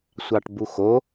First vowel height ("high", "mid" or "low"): low